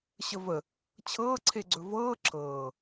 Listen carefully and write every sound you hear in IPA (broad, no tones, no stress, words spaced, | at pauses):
ɕəvə | t͡ɕʰɤːǀʰeɡ͡ǀɵ vɤː ǁʰɤː